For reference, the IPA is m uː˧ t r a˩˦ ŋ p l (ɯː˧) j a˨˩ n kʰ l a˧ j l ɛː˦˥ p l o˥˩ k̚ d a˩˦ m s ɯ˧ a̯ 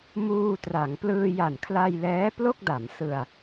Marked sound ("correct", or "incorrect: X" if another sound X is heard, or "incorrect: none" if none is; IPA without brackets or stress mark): correct